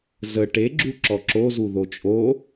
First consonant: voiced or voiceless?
voiced